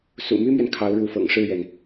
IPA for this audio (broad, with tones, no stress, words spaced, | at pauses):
sṵ˨˩my˥mɥɛ˨n kʰɑ˧˥ʊ̯ɻu˧˥fɤ̰˨˩ŋ ʂɻ̩˥˩ɥɛ˩n